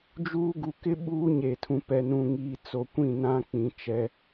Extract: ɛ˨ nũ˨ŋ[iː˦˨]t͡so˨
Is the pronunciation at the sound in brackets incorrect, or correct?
incorrect